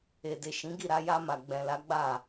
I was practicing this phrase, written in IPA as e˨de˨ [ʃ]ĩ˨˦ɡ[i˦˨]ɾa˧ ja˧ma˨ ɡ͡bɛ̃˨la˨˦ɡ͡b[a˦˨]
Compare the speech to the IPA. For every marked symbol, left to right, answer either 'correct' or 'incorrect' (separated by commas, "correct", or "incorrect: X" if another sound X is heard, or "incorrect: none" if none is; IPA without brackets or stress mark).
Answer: correct, correct, correct